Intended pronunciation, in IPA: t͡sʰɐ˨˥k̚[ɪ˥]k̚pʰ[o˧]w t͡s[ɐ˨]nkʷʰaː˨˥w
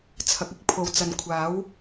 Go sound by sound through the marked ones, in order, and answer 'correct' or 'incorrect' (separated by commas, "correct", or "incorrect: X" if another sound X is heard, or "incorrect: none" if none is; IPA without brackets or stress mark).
correct, incorrect: o˨, correct